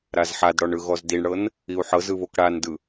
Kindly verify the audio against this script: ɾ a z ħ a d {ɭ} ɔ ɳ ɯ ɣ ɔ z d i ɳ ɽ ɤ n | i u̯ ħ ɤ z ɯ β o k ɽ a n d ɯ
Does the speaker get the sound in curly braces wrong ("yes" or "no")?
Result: yes